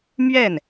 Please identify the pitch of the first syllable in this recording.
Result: falling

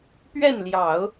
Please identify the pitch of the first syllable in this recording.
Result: falling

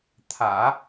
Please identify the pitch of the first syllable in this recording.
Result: low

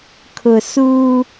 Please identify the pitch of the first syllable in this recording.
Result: low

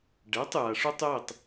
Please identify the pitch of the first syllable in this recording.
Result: rising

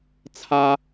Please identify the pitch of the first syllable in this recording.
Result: high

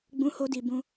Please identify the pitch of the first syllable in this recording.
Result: high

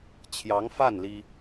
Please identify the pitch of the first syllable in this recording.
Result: rising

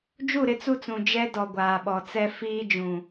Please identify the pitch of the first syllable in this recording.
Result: falling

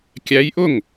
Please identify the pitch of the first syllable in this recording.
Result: rising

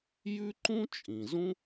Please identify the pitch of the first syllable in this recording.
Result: high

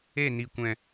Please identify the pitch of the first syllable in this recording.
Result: falling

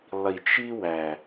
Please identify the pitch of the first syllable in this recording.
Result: low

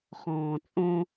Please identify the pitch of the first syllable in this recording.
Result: low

